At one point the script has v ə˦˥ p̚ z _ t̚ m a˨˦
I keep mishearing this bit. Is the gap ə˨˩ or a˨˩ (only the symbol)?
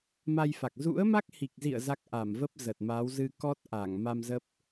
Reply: ə˨˩